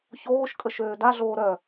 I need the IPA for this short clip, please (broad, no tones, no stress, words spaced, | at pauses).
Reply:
çoːʃkʼəʃ øːdaɮoː ɾœ